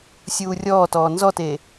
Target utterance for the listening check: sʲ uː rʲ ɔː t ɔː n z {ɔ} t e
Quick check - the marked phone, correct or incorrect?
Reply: correct